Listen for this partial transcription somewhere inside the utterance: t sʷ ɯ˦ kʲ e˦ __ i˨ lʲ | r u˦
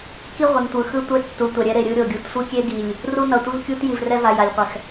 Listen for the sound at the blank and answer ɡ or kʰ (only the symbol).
ɡ